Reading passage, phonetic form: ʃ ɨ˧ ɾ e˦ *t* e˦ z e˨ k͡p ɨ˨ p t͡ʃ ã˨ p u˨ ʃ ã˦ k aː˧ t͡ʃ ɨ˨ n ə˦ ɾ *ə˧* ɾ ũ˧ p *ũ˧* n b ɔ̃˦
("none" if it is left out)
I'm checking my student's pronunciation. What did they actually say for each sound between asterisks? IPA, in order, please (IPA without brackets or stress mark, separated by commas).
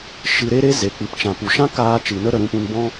ɾ, ə˧, ũ˧